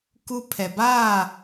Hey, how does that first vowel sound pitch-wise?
high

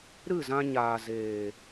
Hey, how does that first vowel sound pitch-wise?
falling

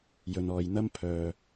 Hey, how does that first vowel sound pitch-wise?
low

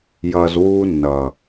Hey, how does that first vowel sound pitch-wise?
low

